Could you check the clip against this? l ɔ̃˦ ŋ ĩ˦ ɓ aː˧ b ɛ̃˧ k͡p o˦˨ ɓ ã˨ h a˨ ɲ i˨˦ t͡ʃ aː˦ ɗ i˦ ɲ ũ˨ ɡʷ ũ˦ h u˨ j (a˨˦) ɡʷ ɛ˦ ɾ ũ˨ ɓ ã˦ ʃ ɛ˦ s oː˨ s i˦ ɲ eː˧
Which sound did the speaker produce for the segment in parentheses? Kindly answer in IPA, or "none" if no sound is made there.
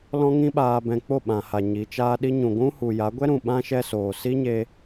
a˨˦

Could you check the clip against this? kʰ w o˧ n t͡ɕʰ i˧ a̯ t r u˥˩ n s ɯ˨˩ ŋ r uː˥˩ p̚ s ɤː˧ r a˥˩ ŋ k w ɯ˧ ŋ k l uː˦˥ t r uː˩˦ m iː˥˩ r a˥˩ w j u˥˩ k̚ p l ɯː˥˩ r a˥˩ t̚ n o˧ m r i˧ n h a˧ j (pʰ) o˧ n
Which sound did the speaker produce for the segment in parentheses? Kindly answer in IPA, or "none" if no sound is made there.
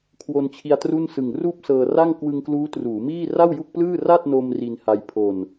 pʰ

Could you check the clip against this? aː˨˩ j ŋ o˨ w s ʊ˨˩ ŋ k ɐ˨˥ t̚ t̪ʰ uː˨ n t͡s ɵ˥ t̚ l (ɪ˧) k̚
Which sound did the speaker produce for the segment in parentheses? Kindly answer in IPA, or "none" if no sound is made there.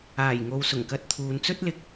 ɪ˧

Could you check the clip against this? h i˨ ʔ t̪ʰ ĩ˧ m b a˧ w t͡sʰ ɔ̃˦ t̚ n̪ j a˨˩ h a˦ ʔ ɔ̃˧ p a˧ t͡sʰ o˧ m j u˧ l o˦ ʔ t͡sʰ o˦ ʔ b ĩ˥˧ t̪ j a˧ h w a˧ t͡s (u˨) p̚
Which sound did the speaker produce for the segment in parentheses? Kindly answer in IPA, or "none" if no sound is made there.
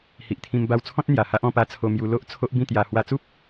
u˦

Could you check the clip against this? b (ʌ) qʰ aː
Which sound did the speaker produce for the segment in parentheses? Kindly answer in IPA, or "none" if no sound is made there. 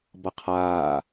ʌ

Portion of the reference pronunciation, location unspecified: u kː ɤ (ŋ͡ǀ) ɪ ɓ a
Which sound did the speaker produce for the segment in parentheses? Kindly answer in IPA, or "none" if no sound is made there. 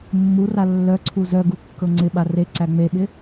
ŋ͡ǀ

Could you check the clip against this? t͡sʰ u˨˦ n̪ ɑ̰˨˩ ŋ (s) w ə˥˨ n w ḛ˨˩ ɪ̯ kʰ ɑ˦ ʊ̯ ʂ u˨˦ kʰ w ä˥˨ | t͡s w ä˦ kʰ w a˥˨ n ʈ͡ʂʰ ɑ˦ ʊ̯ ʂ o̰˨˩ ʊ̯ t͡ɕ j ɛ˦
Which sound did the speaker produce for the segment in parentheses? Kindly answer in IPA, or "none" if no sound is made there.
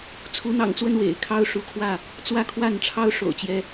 t͡s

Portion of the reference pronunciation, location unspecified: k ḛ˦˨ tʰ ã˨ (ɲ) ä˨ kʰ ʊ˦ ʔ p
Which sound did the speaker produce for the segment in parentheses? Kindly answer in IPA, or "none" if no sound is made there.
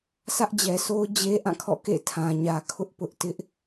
ɲ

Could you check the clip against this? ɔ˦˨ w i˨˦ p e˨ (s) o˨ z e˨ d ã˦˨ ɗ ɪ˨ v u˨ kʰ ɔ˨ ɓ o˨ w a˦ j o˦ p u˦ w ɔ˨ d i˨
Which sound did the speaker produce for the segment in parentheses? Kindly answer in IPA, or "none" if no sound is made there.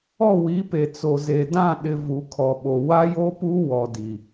t͡s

